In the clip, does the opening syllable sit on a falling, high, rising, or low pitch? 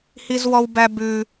high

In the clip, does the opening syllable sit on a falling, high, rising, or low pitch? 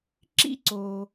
high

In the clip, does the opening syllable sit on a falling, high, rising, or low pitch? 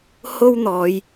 high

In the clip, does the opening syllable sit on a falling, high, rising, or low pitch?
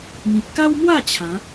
low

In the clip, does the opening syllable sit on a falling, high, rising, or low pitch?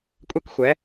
high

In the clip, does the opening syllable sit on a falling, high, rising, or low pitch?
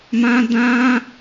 high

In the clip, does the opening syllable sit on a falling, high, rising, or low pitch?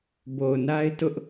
low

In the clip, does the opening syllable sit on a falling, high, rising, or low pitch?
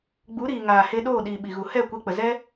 rising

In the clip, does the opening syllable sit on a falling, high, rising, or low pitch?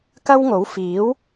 high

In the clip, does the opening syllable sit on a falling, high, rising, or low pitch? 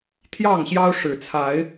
falling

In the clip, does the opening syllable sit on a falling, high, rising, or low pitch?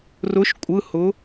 rising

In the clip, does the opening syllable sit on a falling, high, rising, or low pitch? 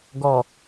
low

